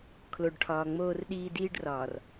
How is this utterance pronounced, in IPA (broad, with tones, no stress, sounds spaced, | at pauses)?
kʰ l o˨ ɖ ʈʰ ɒː˨ ŋ͡m oː˦ r ɗ iː˦ d iː˦ ɖ r ɒː˨ r